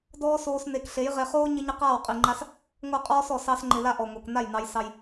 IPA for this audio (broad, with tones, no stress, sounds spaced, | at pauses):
d ɔː˦ s oː˧ s n e˨ k ɬ e˨˦ j ʁ e˧ χ oː˦ ɲ ɪ˦ ɲ ɪ˦ q aː˦˨ w qʼ i˨ ŋ͡ǃ a˦ s | ŋʷ œ˦˨ qʼ ɔː˦ s ɔ˨ s ɑ˧ s ŋ͡ǃ ɪ˨ l a˦ ʔ ɔ˨ ŋʷ e˨ k n a˦˨ j n ɑ˧ j s ɑ˧ j